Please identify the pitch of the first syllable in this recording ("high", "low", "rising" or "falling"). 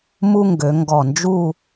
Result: high